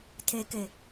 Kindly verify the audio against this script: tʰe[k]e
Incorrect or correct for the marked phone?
correct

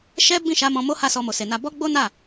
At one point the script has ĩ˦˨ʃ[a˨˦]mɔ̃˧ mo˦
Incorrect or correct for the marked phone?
correct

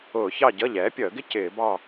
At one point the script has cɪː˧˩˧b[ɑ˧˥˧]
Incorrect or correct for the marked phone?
incorrect: ɑ˥˨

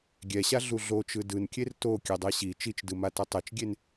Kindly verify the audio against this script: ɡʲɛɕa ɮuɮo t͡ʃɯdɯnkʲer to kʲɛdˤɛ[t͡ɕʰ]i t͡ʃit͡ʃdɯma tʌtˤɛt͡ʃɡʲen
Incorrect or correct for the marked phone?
incorrect: ɕ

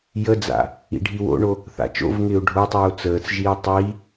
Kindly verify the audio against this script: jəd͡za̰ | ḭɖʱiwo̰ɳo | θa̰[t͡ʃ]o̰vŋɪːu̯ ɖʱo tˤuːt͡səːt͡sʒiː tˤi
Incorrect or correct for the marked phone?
correct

